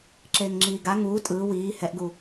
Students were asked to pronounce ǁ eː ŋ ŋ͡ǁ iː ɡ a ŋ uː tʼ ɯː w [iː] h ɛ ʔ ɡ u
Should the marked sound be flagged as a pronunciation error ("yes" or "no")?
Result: no